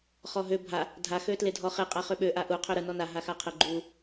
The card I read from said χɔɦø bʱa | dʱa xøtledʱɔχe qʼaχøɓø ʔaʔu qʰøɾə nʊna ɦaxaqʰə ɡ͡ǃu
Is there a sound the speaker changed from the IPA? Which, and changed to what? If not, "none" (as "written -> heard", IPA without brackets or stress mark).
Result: ʊ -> ɔ